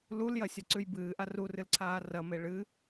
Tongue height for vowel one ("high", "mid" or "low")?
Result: high